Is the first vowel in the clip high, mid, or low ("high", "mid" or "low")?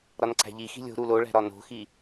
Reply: low